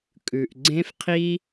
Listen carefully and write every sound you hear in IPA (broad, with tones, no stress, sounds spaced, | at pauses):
kʼ ʉ˨ ʔ ɡ͡ǀ ẽ˦ f qʰ i˦